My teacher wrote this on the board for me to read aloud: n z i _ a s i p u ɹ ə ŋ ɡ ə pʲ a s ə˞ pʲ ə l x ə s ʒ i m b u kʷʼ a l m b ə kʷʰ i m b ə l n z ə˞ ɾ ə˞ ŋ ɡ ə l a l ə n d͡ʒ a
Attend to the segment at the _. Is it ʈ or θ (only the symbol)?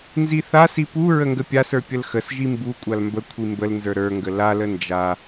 θ